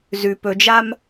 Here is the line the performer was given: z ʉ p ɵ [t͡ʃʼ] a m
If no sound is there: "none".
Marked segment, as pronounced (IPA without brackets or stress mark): d͡ʒ